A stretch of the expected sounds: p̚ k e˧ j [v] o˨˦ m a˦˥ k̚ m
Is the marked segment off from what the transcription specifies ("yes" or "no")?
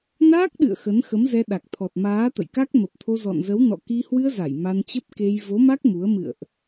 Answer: no